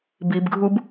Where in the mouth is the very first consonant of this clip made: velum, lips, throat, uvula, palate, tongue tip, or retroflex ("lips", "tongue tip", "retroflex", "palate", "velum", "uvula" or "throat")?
lips